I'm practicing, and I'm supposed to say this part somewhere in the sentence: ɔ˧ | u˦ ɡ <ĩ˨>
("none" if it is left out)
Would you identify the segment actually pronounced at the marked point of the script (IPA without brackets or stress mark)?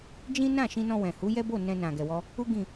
ĩ˦˨